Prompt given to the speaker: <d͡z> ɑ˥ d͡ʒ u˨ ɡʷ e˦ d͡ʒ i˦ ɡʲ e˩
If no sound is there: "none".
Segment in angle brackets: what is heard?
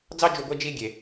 d͡z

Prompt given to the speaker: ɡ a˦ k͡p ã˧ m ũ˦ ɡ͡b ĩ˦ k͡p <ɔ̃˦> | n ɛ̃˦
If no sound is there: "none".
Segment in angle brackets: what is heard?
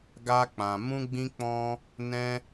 ɔ̃˦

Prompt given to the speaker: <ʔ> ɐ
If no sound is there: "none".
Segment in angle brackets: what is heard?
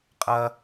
qʼ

